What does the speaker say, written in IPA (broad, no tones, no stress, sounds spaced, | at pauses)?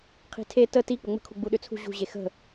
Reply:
qʰ i̤ tʰ e t ə t i k͡p ə ŋ͡m ə̤ kʰ u ɡ͡b u ɗ ʏ t͡sʰ ṳ ʑ ṳ ʑ e x ə̤